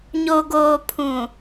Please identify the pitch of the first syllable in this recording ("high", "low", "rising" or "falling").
low